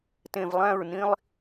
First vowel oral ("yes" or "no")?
no